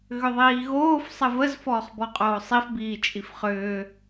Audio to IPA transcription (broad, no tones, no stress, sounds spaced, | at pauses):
ɣ ʏ ðˤ iː ɣ oː f sˤ ə v ə z f ɔː χ b ɔ qʼ oː sˤ i f b iː t͡ʃʼ i f χ ʏː